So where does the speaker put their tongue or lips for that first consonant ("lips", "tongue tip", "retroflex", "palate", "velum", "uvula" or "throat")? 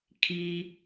velum